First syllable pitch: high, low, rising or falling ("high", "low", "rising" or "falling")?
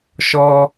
high